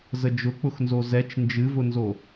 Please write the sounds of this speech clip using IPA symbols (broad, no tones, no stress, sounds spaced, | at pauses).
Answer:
z ə d͡ʒ ʊ k͡p ʊ x n z o z ɛ t͡ʃ n d͡ʒ ɨ v ʊ n z o